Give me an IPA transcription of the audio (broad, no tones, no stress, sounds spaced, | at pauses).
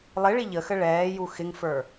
lˠ ɪ ɭ i ʎ ə x ə ɭ ɛː j u x ɪ ŋ f ə˞